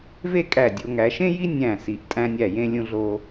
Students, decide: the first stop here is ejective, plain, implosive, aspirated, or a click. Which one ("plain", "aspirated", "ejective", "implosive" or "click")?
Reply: ejective